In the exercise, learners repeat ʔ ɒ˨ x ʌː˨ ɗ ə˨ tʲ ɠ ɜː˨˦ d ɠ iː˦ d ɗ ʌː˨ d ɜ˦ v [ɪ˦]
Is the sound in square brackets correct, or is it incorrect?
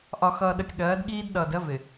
incorrect